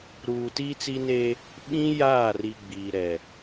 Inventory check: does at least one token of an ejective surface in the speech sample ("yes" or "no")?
no